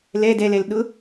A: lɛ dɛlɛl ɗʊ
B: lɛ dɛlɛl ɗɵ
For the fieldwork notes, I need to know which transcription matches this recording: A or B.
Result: A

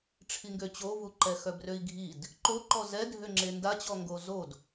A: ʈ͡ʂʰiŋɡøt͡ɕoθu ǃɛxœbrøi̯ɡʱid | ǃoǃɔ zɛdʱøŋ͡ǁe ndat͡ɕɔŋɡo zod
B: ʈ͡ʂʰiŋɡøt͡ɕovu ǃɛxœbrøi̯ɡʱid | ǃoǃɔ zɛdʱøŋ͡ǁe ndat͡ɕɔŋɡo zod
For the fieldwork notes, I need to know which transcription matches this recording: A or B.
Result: B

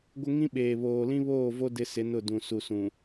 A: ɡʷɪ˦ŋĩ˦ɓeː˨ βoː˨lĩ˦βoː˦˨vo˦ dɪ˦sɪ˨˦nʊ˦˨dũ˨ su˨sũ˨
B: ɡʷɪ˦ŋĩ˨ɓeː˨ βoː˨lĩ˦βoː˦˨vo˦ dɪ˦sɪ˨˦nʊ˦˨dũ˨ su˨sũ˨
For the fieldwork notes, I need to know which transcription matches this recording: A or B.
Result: A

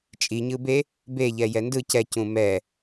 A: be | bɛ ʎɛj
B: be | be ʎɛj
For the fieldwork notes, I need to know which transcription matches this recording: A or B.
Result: B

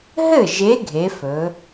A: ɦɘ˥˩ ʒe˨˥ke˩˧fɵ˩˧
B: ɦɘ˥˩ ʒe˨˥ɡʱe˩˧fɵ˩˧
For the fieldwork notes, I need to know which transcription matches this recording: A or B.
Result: B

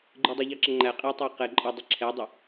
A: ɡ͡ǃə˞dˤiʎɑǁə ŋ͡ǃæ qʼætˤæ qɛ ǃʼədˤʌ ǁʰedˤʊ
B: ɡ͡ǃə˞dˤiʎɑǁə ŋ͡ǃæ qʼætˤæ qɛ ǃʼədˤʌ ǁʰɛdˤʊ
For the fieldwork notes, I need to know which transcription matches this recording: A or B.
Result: B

